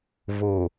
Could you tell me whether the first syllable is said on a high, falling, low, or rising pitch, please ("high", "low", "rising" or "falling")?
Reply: low